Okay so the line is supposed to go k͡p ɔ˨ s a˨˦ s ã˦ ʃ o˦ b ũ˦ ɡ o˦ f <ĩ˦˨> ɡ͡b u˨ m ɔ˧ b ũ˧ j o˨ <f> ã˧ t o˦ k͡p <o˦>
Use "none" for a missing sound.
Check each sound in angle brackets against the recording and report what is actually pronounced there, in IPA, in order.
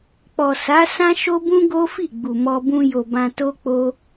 i˦˨, b, o˦

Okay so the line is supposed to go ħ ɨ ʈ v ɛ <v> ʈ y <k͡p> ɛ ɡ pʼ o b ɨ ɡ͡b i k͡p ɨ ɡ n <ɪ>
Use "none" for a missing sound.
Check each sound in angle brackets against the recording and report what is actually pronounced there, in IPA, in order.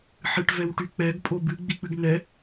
w, k͡p, ɛ

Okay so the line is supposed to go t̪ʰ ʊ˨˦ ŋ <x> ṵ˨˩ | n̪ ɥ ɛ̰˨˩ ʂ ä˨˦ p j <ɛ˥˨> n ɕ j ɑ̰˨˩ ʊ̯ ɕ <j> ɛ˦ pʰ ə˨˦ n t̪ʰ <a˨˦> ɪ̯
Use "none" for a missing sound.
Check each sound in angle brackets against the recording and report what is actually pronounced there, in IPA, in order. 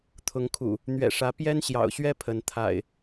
kʰ, ɛ˦, ɥ, a̰˨˩

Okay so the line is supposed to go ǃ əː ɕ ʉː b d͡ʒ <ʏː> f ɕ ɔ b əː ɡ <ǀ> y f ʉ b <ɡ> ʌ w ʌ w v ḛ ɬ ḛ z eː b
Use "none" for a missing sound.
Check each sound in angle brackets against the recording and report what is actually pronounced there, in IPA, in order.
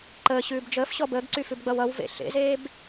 əː, ǀ, ɡ͡b

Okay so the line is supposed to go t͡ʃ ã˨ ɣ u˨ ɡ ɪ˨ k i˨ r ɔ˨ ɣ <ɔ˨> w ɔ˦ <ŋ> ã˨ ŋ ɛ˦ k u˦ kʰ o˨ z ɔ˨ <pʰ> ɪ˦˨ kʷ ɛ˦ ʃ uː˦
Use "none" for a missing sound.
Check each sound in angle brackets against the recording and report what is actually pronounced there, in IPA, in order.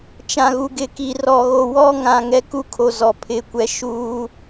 o˨, ŋ, pʰ

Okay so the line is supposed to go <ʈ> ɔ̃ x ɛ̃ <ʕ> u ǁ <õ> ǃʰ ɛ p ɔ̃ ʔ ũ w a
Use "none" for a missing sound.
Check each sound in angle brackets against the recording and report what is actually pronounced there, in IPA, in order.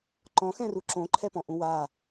ǃ, r, õ

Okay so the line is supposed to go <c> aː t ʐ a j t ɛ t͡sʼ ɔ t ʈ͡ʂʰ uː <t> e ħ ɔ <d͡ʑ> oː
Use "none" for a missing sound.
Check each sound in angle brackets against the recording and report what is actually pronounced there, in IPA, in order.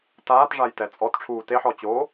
t, t, t͡ɕ

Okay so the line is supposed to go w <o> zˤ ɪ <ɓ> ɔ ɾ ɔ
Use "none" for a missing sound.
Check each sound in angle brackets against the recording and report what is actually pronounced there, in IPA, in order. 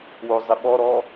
o, ɓ

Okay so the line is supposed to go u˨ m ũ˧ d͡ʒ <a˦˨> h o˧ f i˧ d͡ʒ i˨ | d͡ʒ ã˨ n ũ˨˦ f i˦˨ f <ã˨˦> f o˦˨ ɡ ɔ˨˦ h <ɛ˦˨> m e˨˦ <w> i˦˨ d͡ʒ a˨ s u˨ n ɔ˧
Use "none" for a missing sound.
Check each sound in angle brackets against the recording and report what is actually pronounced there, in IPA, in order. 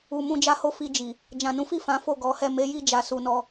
a˧, ã˨˦, ɛ˦˨, j

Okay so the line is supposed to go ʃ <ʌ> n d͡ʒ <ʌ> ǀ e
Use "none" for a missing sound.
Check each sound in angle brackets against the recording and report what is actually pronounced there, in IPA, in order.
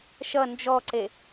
ʌ, ɔ

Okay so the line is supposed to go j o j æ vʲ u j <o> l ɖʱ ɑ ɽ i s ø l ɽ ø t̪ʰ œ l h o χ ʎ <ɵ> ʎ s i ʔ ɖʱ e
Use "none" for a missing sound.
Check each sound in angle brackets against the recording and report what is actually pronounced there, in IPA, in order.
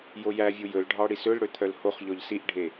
ɵ, ɔ

